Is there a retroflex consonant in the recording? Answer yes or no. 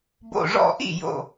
yes